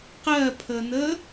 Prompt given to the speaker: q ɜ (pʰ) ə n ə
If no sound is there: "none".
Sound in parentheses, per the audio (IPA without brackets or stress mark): pʰ